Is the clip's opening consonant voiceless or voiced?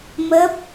voiced